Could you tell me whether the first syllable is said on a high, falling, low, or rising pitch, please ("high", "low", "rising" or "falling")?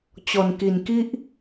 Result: low